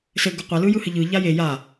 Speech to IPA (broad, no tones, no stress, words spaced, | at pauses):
sɘ ɡʊqʷalɯ jɯhɘʎɯʎa je ja